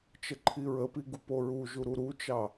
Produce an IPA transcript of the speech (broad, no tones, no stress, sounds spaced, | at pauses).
t͡ʃ ə ǃʰ i ɹ ə p i ɡ u p o ɹ u ʒ u ɾ u ɾ u t͡ʃ ɑ